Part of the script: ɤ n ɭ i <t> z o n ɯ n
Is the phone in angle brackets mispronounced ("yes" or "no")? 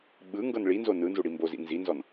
yes